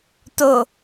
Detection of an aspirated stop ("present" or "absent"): absent